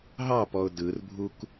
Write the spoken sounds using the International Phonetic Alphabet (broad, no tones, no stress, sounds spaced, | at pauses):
ɦ ɑ p ɔ ʊ̯ d ɯ r bʱ u k